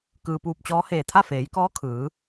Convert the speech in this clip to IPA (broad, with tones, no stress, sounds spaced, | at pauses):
k ɯː˩ p uː˧˩ p̚ t͡ɕ ɔː˧˥ h eː˧˩ t̪ʰ a˥˨ f eː˩˧ j k ɔː˧˥ kʰ ɯː˩˧